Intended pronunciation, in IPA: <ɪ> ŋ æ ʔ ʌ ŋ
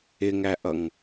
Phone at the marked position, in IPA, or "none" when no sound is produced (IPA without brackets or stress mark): ɪ